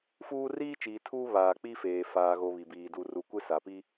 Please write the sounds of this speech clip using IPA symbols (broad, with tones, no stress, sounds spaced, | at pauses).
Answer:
f uː˦ r iː˦ t͡ʃ iː˨ tʰ uː˦ β aː˨ k͡p i˦ f eː˨ f aː˨ ɣ o˨ β i˨ b iː˨ d u˨ r u˨ kʷ e˦ s a˨ p i˦